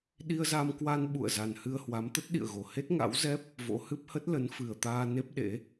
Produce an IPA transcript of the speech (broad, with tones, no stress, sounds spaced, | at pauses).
ɗ i˧ ə̯ z a˧ m k w a˧ n ɓ ṵ˧˨ ə̯ z a˨˩ n h ɨ˧ ə̯ h w a˨˦ m t̪ ə˦˥ t̚ ɗ ḭ˧˨ ə̯ ɣ o˨˩ h e˦˥ t̚ ŋ a̰˧˥ w z ɛ˦˥ p̚ | v o̰˧˥ h ɨ˦˥ p̚ h ə˦˥ t̚ l ə˨˦ n f ɨ˨˩ ə̯ t̪ aː˧ n e˦˥ p̚ ɗ ḛ˧˥